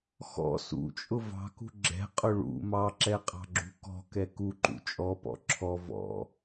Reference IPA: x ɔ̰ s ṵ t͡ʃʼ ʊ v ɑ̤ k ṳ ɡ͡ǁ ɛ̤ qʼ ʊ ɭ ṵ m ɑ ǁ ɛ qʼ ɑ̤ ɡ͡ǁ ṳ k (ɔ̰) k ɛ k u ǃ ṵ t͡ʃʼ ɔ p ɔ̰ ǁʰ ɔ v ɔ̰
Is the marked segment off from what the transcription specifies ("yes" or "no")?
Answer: yes